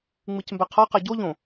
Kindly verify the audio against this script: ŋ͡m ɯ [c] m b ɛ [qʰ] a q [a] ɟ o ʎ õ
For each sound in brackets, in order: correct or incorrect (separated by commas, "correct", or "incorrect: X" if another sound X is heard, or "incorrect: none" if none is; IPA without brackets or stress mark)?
correct, correct, correct